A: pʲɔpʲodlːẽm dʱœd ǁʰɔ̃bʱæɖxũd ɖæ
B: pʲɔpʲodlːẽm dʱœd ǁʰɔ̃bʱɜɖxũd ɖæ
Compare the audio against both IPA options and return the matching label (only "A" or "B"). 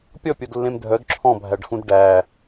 A